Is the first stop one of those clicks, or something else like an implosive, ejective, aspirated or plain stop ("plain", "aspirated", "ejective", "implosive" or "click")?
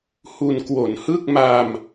plain